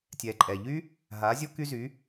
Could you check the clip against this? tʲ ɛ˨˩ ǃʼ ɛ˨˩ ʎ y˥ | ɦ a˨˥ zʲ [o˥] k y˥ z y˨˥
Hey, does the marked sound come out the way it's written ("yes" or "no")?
yes